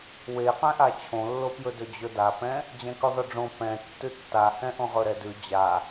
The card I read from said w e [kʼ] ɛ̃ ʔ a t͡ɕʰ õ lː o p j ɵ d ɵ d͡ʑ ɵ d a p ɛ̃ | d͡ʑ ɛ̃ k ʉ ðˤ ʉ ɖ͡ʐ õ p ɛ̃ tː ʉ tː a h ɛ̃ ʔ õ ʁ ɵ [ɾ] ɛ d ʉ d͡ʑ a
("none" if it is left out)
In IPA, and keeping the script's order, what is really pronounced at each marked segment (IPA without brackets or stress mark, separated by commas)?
q, ɾ